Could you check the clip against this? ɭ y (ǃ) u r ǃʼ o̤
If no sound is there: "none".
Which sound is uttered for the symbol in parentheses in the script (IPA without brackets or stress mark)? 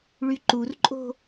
ǃ